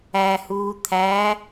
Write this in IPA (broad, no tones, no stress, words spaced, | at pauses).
æhuː t̪ʰæ